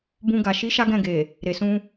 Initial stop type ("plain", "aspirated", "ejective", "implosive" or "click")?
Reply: plain